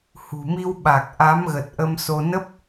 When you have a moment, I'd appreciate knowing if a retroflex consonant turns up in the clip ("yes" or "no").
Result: no